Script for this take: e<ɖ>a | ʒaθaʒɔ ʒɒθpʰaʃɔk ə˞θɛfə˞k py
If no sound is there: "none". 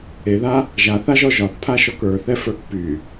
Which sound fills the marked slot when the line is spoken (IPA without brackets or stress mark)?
ð